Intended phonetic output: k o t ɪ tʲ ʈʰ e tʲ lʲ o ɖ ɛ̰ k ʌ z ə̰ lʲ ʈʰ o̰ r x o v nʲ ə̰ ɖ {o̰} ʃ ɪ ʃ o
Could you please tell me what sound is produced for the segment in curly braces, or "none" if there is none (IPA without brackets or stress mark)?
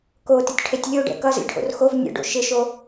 o̰